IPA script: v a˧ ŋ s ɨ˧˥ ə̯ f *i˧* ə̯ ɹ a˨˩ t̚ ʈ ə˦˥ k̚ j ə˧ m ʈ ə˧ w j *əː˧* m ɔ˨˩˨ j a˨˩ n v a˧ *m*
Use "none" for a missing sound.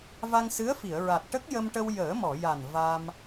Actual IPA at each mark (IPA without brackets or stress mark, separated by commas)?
i˨˩˨, əː˨˩˦, m